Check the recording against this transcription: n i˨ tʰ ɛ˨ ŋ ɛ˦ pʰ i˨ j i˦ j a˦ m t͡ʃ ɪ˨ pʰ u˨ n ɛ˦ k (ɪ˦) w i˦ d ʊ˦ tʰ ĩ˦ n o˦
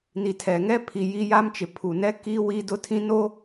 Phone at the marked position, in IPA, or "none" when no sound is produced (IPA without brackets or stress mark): i˦